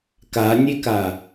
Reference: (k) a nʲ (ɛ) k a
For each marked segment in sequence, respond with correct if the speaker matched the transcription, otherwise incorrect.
correct, incorrect: e

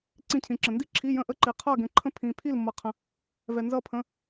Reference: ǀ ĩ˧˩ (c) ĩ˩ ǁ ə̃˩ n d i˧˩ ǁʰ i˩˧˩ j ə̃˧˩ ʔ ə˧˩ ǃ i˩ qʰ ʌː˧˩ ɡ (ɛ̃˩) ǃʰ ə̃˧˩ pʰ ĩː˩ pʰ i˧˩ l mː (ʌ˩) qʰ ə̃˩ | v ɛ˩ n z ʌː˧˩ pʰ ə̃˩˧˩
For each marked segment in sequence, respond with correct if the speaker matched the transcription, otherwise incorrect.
incorrect: cʰ, correct, correct

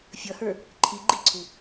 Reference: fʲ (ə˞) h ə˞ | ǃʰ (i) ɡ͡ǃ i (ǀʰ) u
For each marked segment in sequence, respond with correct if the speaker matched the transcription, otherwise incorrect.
incorrect: ʌ, correct, correct

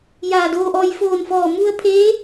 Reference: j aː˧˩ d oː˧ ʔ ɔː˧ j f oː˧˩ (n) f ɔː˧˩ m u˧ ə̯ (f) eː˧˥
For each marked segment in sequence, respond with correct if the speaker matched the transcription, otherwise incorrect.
correct, incorrect: pʰ

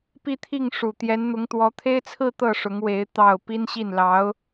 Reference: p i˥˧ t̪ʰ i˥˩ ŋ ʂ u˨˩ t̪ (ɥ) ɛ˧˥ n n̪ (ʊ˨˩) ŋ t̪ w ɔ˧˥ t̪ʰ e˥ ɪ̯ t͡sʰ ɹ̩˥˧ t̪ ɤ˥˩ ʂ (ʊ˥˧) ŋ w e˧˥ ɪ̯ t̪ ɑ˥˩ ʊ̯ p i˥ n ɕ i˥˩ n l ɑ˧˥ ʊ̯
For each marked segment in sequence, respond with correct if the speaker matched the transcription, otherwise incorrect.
incorrect: j, incorrect: ʊ˧˥, incorrect: ʊ˧˥

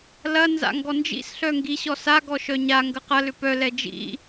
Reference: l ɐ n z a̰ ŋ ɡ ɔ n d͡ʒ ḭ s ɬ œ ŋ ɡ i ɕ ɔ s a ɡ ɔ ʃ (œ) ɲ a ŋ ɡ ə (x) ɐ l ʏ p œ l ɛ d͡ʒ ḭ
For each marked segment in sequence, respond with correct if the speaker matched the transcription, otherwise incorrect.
correct, incorrect: q

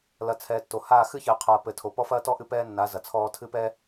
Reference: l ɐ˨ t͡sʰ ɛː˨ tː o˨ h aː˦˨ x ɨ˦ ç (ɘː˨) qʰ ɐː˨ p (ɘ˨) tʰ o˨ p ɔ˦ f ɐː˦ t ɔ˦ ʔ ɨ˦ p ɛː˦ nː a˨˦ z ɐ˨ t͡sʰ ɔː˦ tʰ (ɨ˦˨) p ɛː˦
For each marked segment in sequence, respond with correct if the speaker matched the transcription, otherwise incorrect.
correct, correct, incorrect: ɨ˦

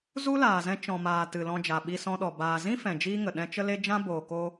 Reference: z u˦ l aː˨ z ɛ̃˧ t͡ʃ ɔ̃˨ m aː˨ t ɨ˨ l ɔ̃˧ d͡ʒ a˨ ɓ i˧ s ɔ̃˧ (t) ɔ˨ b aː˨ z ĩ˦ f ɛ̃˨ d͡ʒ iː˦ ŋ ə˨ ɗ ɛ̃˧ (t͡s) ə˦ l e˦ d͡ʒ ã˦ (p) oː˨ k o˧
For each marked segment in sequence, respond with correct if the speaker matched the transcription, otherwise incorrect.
incorrect: ɗ, incorrect: t͡ʃ, incorrect: b

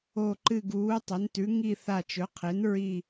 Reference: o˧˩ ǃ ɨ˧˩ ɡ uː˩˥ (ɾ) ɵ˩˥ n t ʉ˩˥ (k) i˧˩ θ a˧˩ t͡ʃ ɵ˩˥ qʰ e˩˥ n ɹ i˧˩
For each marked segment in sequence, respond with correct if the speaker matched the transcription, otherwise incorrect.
incorrect: tˤ, incorrect: ŋ

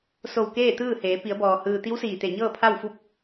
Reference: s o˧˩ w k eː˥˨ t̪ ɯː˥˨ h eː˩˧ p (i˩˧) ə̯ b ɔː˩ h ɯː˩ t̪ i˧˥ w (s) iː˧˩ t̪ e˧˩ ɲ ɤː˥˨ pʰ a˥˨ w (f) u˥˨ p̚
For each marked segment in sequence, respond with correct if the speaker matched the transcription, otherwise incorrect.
correct, correct, correct

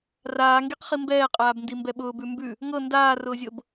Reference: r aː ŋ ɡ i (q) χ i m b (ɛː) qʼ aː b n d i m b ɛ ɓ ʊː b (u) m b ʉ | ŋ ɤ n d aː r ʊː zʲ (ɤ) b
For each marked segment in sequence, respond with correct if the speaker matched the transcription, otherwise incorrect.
correct, correct, incorrect: ʉ, correct

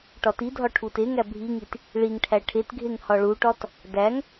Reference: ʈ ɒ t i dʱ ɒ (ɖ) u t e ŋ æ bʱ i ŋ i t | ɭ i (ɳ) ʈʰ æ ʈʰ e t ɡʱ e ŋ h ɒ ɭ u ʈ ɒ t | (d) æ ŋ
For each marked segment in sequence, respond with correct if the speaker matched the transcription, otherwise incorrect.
incorrect: ʈʰ, incorrect: ŋ, correct

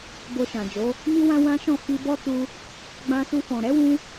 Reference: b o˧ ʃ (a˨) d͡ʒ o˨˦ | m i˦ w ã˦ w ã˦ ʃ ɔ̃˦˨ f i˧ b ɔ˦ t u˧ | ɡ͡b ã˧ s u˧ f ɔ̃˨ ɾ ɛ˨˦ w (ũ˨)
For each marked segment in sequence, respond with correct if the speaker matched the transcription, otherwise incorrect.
incorrect: ã˨, incorrect: ũ˧

